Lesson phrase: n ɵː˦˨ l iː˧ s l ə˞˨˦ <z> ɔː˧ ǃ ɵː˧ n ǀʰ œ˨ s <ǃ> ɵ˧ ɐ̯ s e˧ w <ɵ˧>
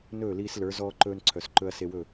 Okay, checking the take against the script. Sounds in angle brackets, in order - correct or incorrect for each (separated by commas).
correct, correct, incorrect